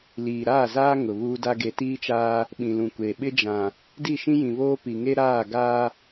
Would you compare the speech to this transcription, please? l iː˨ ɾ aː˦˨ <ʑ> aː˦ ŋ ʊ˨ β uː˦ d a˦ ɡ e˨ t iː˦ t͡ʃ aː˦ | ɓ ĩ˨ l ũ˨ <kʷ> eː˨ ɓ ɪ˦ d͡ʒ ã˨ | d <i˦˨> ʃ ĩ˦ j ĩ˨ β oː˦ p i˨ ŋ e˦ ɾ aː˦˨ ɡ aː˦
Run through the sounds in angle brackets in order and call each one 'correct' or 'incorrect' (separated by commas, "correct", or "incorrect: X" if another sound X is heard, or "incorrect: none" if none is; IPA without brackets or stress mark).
incorrect: z, correct, correct